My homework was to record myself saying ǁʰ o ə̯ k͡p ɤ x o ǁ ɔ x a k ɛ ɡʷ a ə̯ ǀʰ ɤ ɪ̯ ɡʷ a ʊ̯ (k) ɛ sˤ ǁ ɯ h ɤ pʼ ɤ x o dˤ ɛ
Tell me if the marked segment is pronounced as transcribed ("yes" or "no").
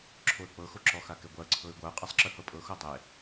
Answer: no